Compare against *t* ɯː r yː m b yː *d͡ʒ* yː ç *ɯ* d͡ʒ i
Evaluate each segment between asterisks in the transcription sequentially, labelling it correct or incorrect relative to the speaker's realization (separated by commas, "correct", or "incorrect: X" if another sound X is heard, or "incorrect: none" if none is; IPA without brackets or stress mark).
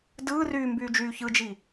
incorrect: d, correct, correct